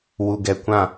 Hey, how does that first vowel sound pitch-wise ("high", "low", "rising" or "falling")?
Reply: low